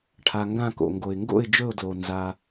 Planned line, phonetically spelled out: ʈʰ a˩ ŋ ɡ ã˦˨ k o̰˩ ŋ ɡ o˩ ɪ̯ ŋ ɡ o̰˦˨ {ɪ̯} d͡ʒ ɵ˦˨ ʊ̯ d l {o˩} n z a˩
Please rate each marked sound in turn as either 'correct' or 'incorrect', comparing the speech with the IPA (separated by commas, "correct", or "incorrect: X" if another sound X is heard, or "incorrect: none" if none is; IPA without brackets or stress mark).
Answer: correct, correct